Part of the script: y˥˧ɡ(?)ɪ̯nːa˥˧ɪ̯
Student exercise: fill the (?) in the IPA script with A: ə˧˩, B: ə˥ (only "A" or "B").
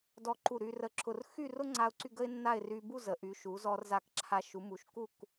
B